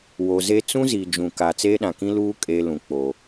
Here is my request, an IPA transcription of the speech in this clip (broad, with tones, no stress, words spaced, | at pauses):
wo˨ze˦ t͡sũ˦zi˨ d͡ʒũ˨ka˨ t͡seː˦ɗã˨kĩ˦luː˦ kʼeː˦lũ˨ k͡po˨